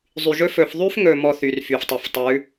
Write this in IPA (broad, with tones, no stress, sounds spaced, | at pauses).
zˤ y˨ ʒ ɵ˦ f ɵ˨ f ðˤ y˦ f ŋ ɵ˨ m ɔ˦ θ y˨ r f y˨ f tˤ ɵ˨ f tˤ ʉ˨˦